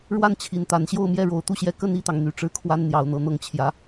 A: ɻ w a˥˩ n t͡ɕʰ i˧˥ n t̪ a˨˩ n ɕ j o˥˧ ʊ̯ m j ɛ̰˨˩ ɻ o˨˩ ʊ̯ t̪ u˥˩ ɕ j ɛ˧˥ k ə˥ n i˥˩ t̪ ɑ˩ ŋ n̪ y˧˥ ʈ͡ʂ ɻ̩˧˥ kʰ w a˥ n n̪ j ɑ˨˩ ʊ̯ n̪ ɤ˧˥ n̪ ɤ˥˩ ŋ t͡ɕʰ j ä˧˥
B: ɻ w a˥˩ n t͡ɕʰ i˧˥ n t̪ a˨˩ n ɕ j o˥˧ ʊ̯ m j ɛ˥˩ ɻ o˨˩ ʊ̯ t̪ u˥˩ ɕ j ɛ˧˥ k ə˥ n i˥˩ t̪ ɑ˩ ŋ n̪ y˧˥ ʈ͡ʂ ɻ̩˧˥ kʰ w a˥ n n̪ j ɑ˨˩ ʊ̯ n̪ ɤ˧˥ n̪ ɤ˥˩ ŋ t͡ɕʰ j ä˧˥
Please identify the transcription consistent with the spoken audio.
B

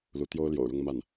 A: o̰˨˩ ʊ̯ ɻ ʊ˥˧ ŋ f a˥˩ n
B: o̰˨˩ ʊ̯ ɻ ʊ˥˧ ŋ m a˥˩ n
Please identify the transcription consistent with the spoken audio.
B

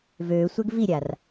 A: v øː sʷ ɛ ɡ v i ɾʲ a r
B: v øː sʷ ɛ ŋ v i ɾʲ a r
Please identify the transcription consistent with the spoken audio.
A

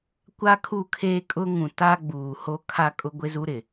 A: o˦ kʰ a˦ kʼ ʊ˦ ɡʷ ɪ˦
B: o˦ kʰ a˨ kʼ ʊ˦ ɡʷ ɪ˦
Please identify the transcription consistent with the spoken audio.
A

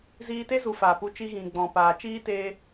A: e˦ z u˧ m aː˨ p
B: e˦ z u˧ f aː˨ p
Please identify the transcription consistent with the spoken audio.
B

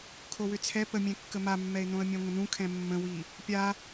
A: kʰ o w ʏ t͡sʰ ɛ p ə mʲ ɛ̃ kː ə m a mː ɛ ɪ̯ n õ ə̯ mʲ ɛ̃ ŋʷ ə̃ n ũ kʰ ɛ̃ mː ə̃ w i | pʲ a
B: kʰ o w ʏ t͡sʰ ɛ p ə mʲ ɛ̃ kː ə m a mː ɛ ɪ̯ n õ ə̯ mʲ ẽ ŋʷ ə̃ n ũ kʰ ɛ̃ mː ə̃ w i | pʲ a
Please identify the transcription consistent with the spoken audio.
B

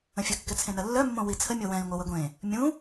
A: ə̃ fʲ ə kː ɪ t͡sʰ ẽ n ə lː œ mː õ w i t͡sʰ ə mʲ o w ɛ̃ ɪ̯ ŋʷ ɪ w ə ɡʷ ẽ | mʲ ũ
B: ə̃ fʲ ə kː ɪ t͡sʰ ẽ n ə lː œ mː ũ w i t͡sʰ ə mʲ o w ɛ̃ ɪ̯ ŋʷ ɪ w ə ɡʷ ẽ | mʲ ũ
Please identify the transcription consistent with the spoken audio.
A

